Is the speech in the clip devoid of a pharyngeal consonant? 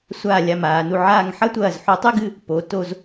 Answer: no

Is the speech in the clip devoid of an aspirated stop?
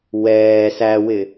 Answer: yes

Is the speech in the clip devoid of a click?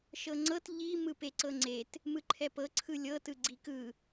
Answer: no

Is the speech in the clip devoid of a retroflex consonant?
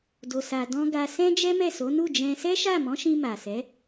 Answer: yes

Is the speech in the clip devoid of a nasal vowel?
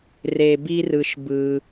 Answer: yes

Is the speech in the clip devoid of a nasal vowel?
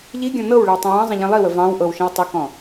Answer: no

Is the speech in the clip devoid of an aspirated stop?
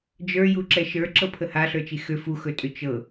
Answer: no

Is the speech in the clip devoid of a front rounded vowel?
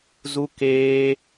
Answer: yes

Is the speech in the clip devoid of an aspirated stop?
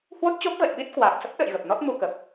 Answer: yes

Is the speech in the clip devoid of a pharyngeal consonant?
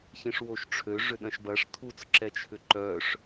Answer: yes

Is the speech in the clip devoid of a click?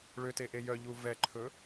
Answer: no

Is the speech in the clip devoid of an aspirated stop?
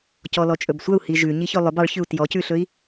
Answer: yes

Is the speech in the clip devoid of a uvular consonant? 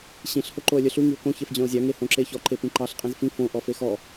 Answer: no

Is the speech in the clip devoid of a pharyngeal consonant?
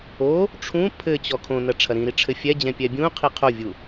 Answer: yes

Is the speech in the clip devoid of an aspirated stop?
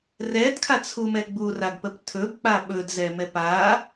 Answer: no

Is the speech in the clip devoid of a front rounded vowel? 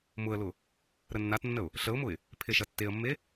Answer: yes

